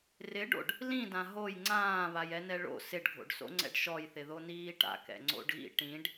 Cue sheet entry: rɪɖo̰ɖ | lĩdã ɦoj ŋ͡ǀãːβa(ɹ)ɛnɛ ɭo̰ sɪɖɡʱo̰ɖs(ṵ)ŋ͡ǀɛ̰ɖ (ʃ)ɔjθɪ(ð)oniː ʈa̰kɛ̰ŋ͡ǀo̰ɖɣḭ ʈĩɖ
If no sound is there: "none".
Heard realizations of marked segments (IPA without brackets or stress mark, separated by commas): j, o̰, ʃ, ð